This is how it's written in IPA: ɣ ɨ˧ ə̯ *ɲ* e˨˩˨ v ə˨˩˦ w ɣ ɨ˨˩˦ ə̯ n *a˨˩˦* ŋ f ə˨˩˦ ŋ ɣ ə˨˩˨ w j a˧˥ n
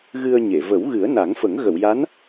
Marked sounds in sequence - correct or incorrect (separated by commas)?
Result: correct, correct